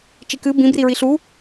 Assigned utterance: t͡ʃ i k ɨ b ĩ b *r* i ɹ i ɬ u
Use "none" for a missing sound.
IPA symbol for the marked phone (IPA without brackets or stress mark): r